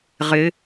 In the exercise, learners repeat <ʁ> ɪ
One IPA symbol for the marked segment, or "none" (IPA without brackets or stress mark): ʁ